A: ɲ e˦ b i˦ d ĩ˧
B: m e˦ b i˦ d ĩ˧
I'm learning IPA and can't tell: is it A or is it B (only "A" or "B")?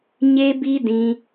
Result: A